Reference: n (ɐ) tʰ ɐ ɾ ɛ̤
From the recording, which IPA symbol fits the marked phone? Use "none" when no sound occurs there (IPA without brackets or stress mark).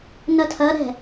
ɐ